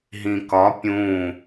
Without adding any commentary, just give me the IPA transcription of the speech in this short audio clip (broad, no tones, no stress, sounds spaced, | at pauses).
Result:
ɦ ĩ k ɒ pʲ ũ